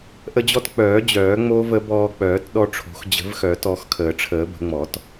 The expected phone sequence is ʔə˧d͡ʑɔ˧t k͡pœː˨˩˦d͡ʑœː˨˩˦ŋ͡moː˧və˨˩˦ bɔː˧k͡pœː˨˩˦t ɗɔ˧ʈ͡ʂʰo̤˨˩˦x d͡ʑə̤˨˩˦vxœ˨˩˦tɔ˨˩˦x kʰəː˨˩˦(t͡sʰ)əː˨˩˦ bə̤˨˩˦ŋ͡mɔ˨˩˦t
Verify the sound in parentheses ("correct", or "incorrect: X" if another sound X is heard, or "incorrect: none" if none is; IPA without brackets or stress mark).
incorrect: ʈ͡ʂʰ